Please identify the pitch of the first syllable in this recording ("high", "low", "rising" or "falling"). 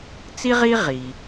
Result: high